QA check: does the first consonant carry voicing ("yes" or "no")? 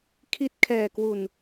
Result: no